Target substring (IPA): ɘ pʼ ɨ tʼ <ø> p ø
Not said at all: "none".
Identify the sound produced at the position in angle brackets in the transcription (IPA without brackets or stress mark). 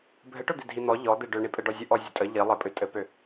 ɘ